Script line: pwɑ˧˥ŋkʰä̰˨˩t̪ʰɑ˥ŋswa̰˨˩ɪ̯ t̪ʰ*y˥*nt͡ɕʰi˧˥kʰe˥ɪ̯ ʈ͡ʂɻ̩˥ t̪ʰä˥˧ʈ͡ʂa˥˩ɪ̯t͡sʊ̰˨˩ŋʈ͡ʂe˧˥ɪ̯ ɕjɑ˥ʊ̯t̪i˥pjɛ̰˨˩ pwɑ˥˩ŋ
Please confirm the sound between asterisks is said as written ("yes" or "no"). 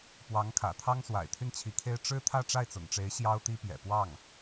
no